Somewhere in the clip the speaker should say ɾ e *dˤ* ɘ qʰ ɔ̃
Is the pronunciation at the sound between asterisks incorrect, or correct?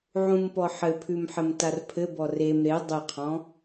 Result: correct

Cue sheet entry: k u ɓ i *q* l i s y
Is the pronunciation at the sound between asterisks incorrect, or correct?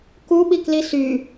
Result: incorrect: k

